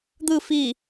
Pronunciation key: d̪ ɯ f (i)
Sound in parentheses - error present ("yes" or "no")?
no